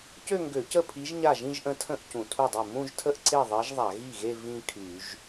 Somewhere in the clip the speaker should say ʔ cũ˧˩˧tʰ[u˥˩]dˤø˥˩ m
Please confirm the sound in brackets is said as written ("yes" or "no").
yes